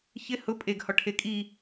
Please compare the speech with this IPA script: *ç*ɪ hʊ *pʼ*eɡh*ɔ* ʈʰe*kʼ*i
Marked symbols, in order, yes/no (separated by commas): yes, yes, yes, yes